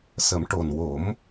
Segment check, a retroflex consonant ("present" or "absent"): present